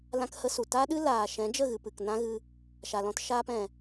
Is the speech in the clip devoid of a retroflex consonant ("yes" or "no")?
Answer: yes